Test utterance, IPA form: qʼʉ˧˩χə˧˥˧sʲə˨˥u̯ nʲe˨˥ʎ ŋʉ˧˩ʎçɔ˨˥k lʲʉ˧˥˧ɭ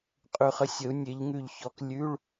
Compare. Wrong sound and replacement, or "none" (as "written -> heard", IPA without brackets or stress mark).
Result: none